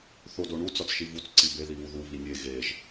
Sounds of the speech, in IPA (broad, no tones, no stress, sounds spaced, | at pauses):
θ o d o ɳ u t͡s ɒ t͡s ʃ i v u t͡s ǀ i b e ð i β u ð u β i nʲ e ɣ e ʒ